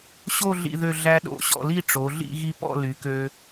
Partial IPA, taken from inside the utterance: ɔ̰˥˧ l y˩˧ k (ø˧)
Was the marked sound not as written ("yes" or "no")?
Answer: no